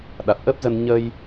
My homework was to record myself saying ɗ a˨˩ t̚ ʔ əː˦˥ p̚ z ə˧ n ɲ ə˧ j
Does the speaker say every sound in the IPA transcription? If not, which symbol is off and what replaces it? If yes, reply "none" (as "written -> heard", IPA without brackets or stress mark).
none